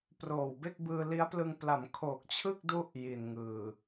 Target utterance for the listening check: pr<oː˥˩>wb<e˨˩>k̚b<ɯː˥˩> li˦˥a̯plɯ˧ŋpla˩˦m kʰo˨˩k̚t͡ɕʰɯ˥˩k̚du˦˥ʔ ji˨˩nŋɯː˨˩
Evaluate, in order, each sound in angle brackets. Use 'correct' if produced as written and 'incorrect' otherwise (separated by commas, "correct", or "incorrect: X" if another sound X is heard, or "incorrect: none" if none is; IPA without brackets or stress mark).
incorrect: oː˨˩, incorrect: e˥˩, incorrect: ɯː˧